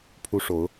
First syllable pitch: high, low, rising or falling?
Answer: high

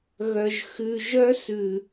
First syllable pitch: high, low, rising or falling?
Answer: low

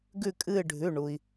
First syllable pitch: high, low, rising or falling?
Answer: falling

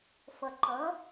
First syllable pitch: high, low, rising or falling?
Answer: low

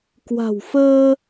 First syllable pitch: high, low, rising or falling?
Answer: low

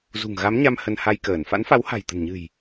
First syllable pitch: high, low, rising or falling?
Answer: low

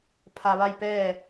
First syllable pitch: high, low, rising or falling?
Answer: low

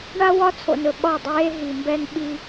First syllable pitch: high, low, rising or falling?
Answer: high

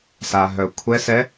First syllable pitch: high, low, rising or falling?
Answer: low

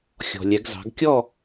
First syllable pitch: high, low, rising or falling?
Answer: low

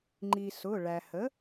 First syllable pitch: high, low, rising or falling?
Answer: low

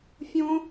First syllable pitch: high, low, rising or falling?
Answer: high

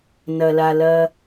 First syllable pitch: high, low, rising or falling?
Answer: low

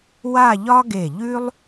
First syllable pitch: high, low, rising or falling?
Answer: falling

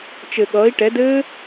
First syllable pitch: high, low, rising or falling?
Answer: low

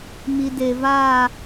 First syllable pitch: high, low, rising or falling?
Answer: low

